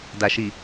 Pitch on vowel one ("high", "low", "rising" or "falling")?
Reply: low